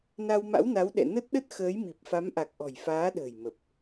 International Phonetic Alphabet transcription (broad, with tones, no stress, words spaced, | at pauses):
na˧wma̰˧˥wna˨˦w ɗɛ̰˧˨nə˦˥t̚ɗə˦˥t̚ xəː˨˦jmi˨˩p̚fa˨˦mʔa˨˩k̚ ʔɔ̤˨˩jfaː˨˦ɗə̤ː˨˩j mə˨˩p̚